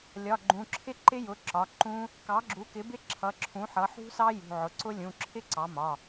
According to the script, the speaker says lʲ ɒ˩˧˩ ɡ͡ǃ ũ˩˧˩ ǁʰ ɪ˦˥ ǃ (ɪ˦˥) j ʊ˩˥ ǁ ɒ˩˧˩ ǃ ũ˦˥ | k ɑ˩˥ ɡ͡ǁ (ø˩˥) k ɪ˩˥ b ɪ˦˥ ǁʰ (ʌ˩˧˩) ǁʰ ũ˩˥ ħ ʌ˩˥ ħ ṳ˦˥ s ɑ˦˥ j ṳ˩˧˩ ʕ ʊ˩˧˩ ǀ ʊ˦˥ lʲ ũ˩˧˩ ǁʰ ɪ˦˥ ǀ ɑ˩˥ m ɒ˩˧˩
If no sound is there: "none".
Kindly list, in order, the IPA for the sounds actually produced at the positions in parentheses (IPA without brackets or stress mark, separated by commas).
ɪ˦˥, u˩˥, ʌ˩˧˩